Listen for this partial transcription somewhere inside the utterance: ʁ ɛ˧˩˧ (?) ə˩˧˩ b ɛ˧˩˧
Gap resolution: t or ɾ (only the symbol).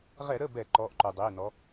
ɾ